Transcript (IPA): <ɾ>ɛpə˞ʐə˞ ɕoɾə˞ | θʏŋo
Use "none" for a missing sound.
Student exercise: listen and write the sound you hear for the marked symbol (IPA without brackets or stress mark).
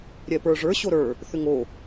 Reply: ɾʲ